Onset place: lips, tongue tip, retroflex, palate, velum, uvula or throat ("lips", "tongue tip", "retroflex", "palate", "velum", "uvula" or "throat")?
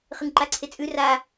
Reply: uvula